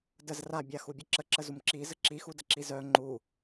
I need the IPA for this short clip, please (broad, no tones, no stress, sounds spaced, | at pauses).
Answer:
d ə z r a bʲ a x u bʲ ə ǁ ə ǁ ə z u m ǁ i z ə ǁ i x u d ə ǁ i z œ ŋ͡ǃ u